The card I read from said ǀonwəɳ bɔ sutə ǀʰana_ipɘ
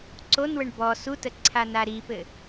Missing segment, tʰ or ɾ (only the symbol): ɾ